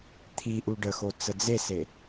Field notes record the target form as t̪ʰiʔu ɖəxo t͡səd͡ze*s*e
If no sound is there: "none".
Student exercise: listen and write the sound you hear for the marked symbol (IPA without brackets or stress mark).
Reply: s